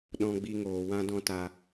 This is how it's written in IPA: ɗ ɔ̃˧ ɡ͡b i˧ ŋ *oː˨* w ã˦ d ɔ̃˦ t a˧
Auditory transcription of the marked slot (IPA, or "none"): oː˨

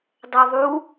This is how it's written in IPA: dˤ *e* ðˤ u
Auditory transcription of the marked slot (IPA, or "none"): ɛ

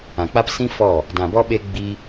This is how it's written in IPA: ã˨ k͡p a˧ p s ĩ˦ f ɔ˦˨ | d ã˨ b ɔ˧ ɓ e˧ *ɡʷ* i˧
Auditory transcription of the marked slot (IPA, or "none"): ɡ͡b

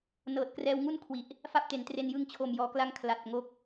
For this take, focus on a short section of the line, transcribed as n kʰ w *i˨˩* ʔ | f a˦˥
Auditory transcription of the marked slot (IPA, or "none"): i˨˩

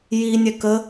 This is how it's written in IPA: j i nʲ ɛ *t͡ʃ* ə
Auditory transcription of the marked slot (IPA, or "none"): k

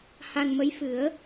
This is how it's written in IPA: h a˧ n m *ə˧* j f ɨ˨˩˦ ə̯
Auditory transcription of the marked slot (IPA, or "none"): ə˧˥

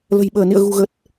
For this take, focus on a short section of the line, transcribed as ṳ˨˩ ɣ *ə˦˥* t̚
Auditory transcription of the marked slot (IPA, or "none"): ə˨˩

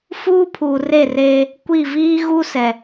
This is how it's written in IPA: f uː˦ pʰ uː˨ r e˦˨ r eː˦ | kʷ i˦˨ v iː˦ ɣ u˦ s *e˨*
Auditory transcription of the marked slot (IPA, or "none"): ɛ˨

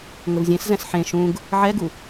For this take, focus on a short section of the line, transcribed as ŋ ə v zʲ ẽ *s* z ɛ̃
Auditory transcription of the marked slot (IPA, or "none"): s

